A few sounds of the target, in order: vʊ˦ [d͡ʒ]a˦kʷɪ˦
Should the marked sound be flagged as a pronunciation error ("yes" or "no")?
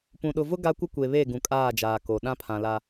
yes